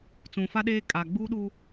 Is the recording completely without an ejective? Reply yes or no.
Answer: no